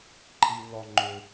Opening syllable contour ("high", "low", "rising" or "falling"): high